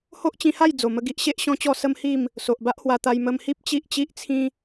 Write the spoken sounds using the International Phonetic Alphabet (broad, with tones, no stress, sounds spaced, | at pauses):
h o˦ ʔ t͡ɕ ĩ˧ h a˥˧ j d͡z o˨˩ m ə˧ ɡ i˦ ʔ ɕ e˦ ʔ ɕ ɔ̃˦ t͡ɕ ɔ˥˧ s ə˦ m h i˥˧ m | s o˨ ʔ b a˦ ʔ h w a˧ t̪ a˧ j m ə˧ m h i˦ p̚ t͡ɕ i˦ ʔ t͡ɕ i˦ ʔ t͡sʰ ĩ˦